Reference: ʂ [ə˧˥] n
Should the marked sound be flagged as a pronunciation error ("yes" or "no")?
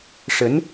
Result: no